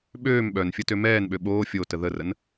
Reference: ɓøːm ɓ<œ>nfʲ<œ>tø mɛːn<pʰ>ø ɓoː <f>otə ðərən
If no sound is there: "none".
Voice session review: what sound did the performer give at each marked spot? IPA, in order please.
œ, ə, ɓ, fʲ

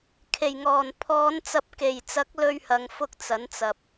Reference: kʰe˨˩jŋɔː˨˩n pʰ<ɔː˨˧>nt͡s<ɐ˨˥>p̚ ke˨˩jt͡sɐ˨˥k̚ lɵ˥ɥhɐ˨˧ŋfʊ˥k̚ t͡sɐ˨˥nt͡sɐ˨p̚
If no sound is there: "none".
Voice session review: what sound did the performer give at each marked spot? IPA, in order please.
ɔː˨˧, ɐ˨˥

